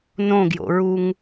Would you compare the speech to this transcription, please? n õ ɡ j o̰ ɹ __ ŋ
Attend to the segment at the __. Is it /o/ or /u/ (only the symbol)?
u